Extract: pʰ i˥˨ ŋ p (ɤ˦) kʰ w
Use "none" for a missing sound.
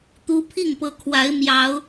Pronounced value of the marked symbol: ɤ˨˦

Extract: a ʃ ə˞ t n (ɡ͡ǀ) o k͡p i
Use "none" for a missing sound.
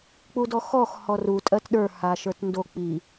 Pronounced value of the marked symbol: d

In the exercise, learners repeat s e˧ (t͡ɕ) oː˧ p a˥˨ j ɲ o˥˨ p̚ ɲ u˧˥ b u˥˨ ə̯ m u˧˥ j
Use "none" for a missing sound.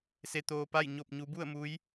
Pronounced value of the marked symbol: t̪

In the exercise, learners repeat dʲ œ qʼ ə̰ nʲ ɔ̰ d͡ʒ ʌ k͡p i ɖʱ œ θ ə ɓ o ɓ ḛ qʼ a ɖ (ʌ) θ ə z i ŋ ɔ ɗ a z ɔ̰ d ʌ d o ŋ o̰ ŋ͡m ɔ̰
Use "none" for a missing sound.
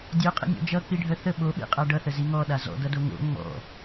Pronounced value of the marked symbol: ʌ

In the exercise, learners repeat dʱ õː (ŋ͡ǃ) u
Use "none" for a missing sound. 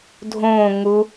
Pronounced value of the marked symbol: ŋ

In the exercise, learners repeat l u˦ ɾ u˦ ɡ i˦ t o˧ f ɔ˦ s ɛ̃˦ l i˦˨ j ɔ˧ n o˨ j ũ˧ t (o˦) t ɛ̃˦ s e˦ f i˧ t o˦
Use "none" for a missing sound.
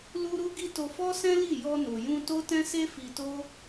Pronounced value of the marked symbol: o˦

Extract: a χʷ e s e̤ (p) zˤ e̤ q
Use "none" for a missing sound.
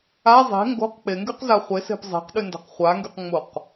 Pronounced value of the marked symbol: p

